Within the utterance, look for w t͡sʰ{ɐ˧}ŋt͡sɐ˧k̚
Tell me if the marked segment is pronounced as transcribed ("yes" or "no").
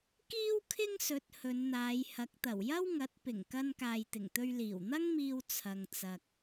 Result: yes